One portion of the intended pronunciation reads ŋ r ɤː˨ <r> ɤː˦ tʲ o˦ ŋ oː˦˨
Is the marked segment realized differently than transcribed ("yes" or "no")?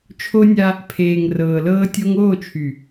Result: yes